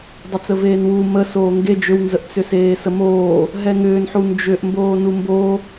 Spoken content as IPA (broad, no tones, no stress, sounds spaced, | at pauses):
dˤ ə t͡s ə v eː n w u m ə s oː ŋ ɡ e d͡ʒ ʏ w n z ə ʔ t͡s ʏ s eː s ə m oː | ɦ ɛ ŋ ʏː n ħ u n d͡ʒ ʏ ʔ m b oː n u m b o